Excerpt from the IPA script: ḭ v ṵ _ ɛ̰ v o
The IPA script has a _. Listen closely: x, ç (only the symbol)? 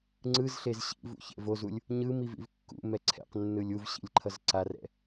ç